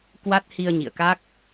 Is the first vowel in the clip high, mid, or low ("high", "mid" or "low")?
low